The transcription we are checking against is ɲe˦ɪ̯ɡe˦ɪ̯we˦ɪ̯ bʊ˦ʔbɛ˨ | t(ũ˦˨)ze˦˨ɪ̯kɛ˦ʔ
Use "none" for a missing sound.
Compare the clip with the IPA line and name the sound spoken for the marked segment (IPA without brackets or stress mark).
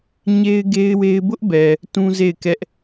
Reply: ũ˦